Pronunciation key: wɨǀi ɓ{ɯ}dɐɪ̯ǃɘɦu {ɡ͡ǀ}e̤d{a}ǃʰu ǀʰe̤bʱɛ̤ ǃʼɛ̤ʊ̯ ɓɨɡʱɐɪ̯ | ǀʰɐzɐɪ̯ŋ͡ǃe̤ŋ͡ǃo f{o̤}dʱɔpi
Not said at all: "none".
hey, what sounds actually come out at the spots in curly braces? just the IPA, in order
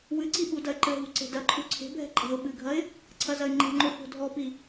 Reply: u, ǀ, ɐ, o̤

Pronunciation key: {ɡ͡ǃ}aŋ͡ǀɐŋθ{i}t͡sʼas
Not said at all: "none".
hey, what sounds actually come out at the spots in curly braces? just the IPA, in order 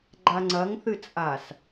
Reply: ɡ͡ǃ, ɨ

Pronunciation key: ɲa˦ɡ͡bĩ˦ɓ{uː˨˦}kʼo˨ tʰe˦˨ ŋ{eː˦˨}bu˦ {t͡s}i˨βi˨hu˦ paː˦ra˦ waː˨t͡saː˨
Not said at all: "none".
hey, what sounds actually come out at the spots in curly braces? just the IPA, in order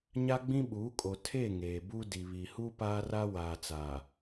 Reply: uː˨˦, eː˨, d

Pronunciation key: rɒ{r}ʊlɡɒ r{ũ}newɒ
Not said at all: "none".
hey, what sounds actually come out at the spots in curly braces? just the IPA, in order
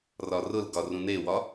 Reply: r, ũ

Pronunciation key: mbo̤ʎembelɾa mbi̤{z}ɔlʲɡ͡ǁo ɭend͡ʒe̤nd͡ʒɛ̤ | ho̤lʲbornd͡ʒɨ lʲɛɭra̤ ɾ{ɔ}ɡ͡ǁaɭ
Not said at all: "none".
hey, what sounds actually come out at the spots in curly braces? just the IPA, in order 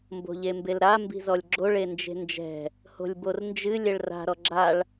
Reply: z, ɔ

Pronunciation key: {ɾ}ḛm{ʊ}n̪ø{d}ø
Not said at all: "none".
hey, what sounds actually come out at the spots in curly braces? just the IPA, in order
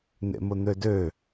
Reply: n̪, ʊ, d

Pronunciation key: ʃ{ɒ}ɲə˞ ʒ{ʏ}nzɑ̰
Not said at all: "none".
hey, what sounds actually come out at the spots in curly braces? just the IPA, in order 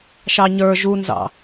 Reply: ɑ, u

